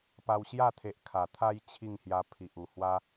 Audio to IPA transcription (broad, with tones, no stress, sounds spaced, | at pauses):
p a˧ w ɕ j a˥˧ t̪ʰ e˨ ʔ kʰ a˨˩ t̪ʰ a˦ j t͡ɕʰ i˥˧ ŋ h j a˧ pʰ i˨ ʔ u˨˩ h w a˦